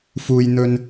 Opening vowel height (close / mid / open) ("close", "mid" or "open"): close